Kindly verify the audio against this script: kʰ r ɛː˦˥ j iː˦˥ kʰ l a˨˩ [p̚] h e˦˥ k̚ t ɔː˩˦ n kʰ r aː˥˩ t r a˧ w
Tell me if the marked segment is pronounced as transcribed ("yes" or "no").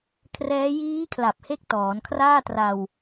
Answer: yes